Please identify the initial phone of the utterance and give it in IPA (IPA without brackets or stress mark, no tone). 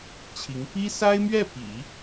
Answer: t͡ɕʰ